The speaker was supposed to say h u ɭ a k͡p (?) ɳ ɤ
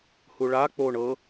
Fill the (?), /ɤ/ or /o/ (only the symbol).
o